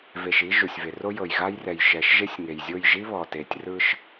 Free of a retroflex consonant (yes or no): yes